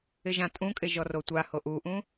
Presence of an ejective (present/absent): present